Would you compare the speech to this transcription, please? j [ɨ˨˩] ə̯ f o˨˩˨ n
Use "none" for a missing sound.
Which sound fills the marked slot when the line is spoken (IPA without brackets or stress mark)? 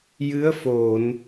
ɨ˧˥